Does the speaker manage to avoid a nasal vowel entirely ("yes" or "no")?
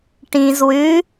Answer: no